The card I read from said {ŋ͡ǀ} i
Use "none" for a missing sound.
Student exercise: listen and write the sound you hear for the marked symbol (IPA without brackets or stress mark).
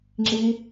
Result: ŋ͡ǁ